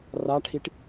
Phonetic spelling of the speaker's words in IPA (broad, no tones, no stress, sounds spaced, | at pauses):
r a ʈʰ i ʈ